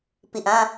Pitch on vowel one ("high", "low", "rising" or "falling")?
low